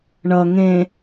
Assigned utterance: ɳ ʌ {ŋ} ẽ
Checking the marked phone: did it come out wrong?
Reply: no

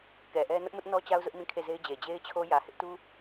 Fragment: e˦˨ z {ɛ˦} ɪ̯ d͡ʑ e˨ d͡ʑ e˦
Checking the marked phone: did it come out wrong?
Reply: yes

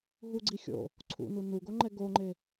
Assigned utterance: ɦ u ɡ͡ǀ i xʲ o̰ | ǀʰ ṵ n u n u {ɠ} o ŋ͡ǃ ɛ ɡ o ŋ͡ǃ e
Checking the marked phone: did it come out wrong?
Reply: yes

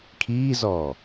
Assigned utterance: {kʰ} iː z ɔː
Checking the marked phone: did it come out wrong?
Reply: no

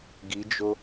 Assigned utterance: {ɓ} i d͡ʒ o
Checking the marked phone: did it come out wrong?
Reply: yes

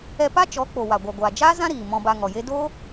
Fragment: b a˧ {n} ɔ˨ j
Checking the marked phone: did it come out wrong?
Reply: yes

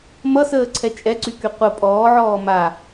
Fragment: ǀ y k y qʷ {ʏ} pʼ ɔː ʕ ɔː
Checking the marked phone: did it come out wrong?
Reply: yes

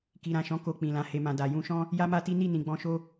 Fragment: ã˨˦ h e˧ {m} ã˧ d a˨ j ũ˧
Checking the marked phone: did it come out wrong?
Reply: no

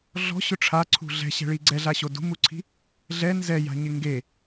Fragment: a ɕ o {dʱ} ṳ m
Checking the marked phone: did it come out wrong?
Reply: yes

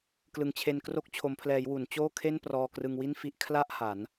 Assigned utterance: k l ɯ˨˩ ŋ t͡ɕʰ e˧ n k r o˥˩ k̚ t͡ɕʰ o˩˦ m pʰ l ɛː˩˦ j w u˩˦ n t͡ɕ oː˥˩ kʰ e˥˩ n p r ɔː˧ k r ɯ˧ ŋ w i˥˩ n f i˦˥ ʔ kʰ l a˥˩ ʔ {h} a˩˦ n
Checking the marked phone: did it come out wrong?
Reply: no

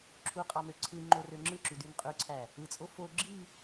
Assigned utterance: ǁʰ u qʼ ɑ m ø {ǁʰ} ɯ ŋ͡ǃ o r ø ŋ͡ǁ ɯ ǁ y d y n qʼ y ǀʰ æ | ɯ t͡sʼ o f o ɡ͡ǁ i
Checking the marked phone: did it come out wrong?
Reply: yes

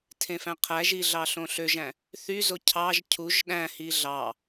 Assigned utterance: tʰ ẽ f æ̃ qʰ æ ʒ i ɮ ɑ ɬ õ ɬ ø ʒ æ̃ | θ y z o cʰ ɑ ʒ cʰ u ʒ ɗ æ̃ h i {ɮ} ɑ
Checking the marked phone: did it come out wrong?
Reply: no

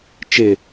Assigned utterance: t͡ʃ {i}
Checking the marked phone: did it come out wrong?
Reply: yes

